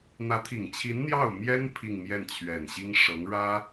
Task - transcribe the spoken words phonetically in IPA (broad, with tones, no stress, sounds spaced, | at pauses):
n̪ ä˧˥ t̪ʰ i˨˩ ŋ t͡ɕʰ i˧˥ n n̪ j ɑ˥˩ ʊ̯ m j ɛ˥ n pʰ i˥˧ ŋ m j ɛ˥˩ n t͡ɕʰ ɥ ɛ˨˩ n ɕ i˥ ŋ ʂ ɤ˧˥ ŋ ɻ ä˥